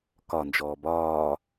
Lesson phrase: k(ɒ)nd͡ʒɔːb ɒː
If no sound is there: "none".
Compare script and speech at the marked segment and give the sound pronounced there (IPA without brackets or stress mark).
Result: ɒ